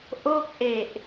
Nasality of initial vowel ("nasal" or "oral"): oral